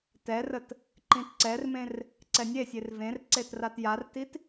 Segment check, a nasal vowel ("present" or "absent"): present